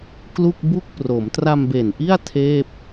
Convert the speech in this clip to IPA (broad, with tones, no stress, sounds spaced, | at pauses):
k l u˥˩ k̚ b u˥˩ k̚ p r o˩˦ m t r a˧ m b e˨˩ n ʔ i˥˩ a̯ tʰ eː˥˩ p̚